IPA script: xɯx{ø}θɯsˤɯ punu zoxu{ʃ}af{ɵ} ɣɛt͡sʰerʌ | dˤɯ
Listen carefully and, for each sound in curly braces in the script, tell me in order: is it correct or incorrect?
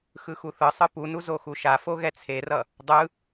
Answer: incorrect: u, correct, incorrect: o

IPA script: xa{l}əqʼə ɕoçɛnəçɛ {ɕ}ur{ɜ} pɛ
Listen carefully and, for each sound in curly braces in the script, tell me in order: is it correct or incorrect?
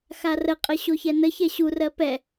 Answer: incorrect: r, correct, correct

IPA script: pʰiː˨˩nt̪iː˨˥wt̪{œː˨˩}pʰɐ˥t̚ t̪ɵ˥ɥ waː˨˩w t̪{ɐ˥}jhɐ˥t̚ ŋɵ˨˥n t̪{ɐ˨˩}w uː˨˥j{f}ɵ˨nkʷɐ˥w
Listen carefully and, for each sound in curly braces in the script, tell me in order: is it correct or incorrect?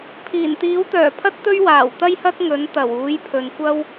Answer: correct, correct, correct, incorrect: pʰ

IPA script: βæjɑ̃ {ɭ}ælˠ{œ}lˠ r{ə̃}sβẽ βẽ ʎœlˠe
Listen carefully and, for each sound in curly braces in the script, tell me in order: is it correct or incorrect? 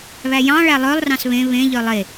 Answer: correct, correct, incorrect: ɑ̃

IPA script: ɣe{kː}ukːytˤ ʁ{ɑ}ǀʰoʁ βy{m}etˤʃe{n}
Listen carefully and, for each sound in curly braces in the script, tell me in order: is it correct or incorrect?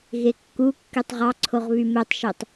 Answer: correct, correct, correct, incorrect: tˤ

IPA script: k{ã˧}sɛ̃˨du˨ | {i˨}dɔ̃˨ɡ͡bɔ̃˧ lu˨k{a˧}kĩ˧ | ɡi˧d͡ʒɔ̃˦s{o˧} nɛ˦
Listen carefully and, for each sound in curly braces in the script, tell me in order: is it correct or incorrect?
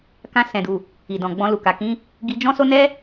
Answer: correct, correct, incorrect: a˨, incorrect: o˦

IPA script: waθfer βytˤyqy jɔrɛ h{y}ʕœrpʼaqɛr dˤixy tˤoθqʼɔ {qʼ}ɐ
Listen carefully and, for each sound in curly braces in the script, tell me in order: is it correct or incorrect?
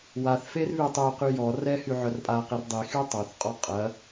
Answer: correct, correct

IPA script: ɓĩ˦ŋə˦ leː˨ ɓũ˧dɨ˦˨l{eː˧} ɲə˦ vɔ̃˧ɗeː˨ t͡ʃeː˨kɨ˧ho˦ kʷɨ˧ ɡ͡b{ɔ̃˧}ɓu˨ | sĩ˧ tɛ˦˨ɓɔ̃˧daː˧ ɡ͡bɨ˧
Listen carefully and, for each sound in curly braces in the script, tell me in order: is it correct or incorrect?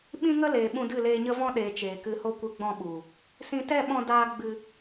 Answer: correct, correct

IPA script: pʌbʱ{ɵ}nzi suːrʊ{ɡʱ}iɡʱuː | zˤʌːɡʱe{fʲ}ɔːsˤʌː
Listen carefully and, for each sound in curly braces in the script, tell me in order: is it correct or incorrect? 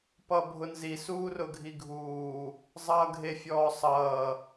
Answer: incorrect: ʊ, correct, correct

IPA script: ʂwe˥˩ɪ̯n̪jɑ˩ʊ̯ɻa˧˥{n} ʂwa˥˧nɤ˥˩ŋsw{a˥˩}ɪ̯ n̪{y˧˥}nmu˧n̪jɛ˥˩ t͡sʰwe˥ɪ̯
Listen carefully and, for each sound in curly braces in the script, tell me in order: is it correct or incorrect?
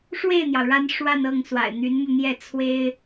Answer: correct, incorrect: a̰˨˩, correct

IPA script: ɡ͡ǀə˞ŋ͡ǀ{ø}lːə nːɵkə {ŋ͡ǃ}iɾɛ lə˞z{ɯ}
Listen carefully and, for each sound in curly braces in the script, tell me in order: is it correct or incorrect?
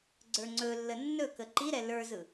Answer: incorrect: ɵ, incorrect: ǃ, correct

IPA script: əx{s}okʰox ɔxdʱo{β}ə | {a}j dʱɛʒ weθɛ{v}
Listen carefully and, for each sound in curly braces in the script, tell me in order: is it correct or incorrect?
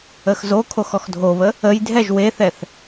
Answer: incorrect: z, correct, incorrect: ə, incorrect: θ

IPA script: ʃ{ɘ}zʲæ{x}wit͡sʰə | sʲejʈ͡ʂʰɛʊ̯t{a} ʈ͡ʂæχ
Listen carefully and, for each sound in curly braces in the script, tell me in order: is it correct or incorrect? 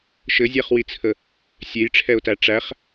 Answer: correct, incorrect: χ, incorrect: æ

